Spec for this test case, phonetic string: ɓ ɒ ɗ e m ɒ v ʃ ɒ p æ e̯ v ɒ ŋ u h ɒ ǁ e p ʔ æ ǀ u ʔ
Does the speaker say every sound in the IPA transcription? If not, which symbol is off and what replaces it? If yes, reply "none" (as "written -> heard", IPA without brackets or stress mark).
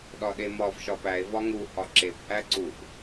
ɓ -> ɗ